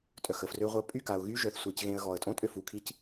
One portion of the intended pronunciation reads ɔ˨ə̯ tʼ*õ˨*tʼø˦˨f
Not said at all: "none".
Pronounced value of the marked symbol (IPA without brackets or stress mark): õ˦